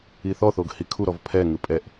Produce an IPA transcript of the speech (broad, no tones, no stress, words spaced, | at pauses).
iθɔθoɡ hikʰuɾɔv pʰɛŋɯ pʼɛʔ